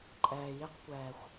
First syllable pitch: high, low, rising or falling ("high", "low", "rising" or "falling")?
low